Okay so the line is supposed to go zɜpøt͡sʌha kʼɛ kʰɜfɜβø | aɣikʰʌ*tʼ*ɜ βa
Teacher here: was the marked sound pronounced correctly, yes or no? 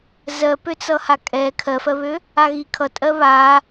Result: yes